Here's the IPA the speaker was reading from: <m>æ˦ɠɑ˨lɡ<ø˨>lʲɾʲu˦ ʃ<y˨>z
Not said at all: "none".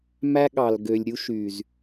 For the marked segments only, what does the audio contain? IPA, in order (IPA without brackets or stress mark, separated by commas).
m, ø˨, y˨